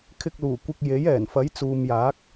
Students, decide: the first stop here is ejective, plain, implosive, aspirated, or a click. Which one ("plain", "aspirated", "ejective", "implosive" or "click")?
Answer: aspirated